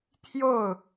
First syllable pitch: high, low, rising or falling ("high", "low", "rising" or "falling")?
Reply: falling